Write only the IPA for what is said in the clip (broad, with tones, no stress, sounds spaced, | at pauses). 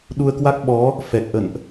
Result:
ɗ u˧ ə̯ k w a˦˥ k̚ ɓ ɔ˨˦ | f ɛ˨˩ k̚ ʔ ə̰˧˨ n ʔ